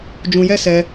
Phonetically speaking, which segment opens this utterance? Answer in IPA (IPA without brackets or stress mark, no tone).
d͡ʒ